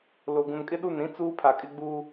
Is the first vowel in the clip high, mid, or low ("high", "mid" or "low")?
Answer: mid